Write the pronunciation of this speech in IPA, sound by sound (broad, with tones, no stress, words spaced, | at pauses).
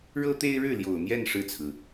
ɻɤ˥t̪e˥ɪ̯ɻɻ̩˥˩ ljo˨˩ʊ̯n̪jɛ˥˧n ʂɻ̩˥˩t͡sʰɹ̩˩